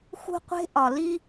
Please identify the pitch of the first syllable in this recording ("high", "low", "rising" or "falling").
high